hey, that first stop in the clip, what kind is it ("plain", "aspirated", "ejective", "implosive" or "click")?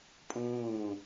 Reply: ejective